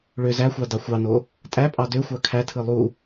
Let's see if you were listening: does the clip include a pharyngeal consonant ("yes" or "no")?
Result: no